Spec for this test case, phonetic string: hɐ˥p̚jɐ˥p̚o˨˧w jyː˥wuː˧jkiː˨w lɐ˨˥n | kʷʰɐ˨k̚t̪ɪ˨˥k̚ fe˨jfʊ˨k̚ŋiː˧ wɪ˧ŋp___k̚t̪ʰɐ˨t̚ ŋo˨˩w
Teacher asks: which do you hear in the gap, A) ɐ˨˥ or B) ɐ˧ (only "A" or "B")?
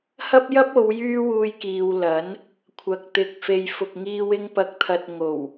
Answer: A